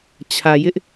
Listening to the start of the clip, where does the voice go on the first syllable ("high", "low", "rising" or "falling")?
low